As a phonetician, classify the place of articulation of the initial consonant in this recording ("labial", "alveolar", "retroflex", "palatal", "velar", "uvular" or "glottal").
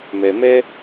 labial